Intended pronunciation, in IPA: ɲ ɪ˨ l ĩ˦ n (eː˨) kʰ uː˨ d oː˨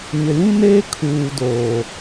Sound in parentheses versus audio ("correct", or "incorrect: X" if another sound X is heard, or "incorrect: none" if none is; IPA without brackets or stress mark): incorrect: eː˦